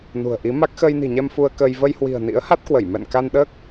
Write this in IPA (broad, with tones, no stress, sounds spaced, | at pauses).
n ṳ˨˩ ə̯ ʔ i˨˦ m a˦˥ k̚ x əː˧ j n i̤˨˩ ɲ ɛ˧ m f u˧ ə̯ k əː˧ j v ə˧ j h w i̤˨˩ ə̯ n ḭ˧˥ ə̯ h a˦˥ t̚ k w ə˧˩ j m ɛ̰˧˨ n k a˧ n ɗ əː˦˥ k̚